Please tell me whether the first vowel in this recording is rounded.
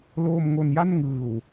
yes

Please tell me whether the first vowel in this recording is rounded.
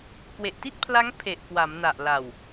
no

